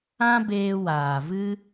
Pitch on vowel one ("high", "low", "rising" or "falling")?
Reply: high